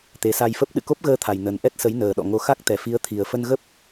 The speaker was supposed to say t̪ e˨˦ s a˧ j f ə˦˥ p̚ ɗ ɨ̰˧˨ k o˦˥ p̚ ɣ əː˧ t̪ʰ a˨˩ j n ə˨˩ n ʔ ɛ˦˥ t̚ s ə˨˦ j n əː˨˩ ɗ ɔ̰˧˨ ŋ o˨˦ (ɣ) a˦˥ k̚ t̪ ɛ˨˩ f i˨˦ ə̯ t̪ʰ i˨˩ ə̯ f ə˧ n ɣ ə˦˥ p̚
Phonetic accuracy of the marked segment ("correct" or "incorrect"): incorrect